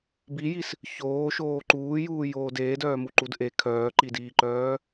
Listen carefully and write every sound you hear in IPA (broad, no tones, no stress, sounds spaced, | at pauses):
b i j i s | ç oː ʃ oː ǃ uː j uː j oː d eː d œː m u ǃ u d ʔ e kʰ œː ǃ i d iː ǃ œː